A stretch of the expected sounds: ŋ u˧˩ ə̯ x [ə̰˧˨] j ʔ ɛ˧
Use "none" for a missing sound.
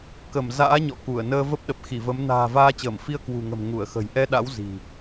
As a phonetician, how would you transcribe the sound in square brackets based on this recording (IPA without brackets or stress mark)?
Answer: ə̤˨˩